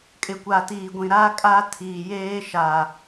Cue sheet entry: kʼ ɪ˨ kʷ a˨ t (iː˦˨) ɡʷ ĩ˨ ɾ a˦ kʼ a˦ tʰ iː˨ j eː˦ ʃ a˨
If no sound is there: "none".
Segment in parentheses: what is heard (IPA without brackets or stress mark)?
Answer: iː˨